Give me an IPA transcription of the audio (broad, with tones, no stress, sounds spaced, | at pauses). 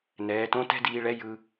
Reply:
n ɛː˩˧ t õ˧˥ t ɛ̤˥ d iː˧ ɭ ɛ˧˥ j ɯ˧